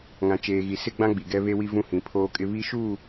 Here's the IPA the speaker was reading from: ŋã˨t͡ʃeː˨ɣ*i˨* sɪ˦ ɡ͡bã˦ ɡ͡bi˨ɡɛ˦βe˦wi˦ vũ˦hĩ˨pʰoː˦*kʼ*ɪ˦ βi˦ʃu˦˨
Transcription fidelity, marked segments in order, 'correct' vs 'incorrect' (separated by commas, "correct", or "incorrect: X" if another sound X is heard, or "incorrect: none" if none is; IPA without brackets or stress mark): correct, correct